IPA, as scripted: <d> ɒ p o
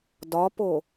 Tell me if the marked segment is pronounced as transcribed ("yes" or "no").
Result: yes